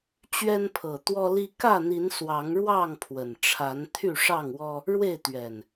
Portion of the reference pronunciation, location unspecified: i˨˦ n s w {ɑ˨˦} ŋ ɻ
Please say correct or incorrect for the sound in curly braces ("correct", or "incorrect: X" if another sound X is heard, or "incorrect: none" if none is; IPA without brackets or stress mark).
correct